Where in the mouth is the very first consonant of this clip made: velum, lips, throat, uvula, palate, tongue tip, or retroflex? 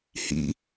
throat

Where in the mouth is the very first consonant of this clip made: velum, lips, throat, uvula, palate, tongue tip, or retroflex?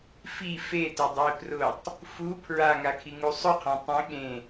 lips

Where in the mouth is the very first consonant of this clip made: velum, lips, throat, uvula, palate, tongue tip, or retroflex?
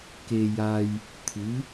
velum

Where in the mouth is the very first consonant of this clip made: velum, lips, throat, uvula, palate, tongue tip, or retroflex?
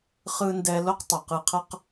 uvula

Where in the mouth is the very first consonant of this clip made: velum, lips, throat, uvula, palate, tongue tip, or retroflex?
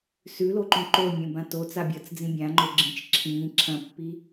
tongue tip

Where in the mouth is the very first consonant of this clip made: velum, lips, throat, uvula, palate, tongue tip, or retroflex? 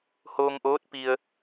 throat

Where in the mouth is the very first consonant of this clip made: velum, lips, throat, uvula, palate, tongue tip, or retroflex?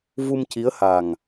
lips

